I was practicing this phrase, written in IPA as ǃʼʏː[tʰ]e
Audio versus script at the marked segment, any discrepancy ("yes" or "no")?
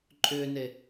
yes